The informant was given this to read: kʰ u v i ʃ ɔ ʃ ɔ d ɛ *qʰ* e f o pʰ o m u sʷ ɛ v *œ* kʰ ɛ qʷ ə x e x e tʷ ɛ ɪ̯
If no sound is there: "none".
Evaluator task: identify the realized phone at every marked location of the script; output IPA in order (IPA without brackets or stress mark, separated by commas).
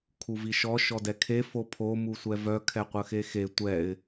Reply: kʰ, œ